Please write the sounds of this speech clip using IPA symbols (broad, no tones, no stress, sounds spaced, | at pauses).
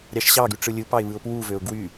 ɾʲ ɑ ʃ ɕ ɑ ɡ y ʈ͡ʂ ɯ lʲ ɯ p ɑ ɪ̯ β ɯ ʊ̯ p w u v ø ʊ̯ ɡ w y